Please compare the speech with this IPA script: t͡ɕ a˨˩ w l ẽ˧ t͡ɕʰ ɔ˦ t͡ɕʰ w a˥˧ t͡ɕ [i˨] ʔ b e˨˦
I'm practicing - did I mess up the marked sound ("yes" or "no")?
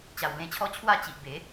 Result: no